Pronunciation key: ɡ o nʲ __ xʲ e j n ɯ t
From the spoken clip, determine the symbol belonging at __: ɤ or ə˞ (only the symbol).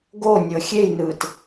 ɤ